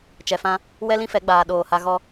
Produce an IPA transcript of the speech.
t͡ʃ ɛ˨ f ã˦ | w ɛ˦ l ĩ˦ f ɛ˨˦ ɡ͡b aː˨ ɗ oː˨ h a˦ ɣ ɔ˦

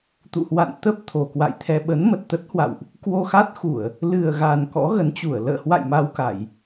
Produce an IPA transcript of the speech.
t̪ ṵ˧˨ h w a̰˧˨ n t̪ ə˦˥ p̚ t̪ʰ o˨˩ k w a̰˧˨ j t̪ʰ ɛ˧ ɓ ə˨˦ n m ə˨˩ t̚ t̪ ə˦˥ t̚ h w a̰˧˨ w ʔ | k w o˧ x a˦˥ t̚ x u˧˩˨ ə̯ | l ɨ˨˩ ə̯ ɣ a˨˩ n k ɔ̰˧˥ ɣ ə˨˦ n t͡ɕ u˧˩ ə̯ l ə̰ː˧˨ h w a̰˧˨ j m a˧ w k a˧˩˨ j

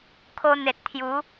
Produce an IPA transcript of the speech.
kʰ o˧ n̪ e˨ t̚ t̪ʰ j u˨˦

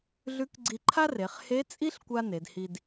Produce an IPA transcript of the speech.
ɮ ʉ˧˥ k ɡ͡ǀ i˧ ǃʰ a˥ r e˩˧ χ h e˧˥ t͡sʼ i˥ ɬ kʷ a˥ n e˩˧ d h i˧ d

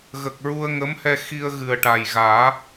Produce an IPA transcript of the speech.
ɣ ə˨˩ k̚ ɹ u˧ ə̯ ŋ ə˧˥ m h ɛ˧ x i˧ ə̯ ɣ ɨ˨˩ ə̯ ʈ a˨˩ j ɣ aː˨˩˦

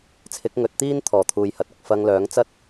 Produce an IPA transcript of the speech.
t͡sʰ ɪ˨˥ k̚ ŋ ɵ˨˥ t̚ t̪ iː˥ n t̪ʰ ɔː˨˩ t̪ʰ uː˨ j h ɐ˨ t̚ ɪ˨ k̚ f ɐ˧ ŋ l œː˨˥ ŋ t͡s ɐ˥ t̚

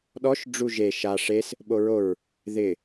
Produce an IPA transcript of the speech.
ɗ ɔ ʃ ɖ͡ʐ u ʒ e ʃ a ʂ e s | ɓ o ɹ o ɹ | ð ɪ

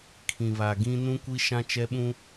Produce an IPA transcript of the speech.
kʰ ĩ˨ β a˨ ɡ ĩ˦ n ũ˦ kʷ i˦ ʃ ã˦ t͡ʃ ɛ˦ ɓ ũ˦

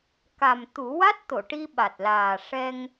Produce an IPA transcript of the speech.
k a˨˩ m t̪ u˨˩˦ w a˦˥ t̚ t̪ o˨˩˨ ʈ i˧ ɓ a˨˩ t̚ l aː˨˩ ʂ ɛ˧ ŋ

